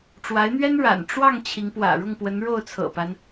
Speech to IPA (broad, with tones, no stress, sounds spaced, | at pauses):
ʈ͡ʂ w a˧˥ ɪ̯ n̪ ɥ ɛ˥ n ɻ a̰˨˩ n ʈ͡ʂ w ɑ˥˩ ŋ t͡ɕʰ i˧˥ ŋ p w ä̰˨˩ ɻ ʊ˥˩ ŋ p w ə˧˥ n ɻ o˥˩ ʊ̯ t͡sʰ ɤ̰˨˩ p a˦ n